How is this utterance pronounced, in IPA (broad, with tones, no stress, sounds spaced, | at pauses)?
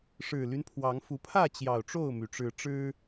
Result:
ʂ ɻ̩˨˩ l y˦ n pʰ w ɑ˨˦ ŋ f u˨˦ pʰ ä˥˨ t͡ɕ j ɑ˨˩ ʊ̯ ʈ͡ʂ o˥˨ ʊ̯ m y˩ ʈ͡ʂ ɻ̩˨˦ ʈ͡ʂ ɻ̩˦